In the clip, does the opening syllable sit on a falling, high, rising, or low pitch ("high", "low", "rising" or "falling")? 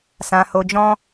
low